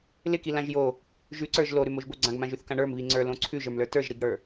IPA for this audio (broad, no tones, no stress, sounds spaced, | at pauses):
l ɪ k i l ã ʒ j o | ʒ ʉ ǀ ə˞ ʒ l o ɾ ʉ m o ʒ b o ɡ͡ǀ ã ɡ m ã ʒ ʉ θ k ã ɳ ə˞ m β i ŋ͡ǀ ə˞ l õ ǀʰ ʉ ʒ ə˞ m l ə˞ t ə˞ ʒ ɾ i ɡ ɽ ə˞